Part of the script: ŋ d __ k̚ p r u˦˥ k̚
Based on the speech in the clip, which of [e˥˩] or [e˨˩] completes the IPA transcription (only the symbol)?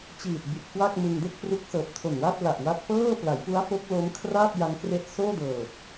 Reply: e˥˩